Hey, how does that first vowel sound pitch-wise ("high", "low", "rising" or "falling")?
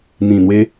low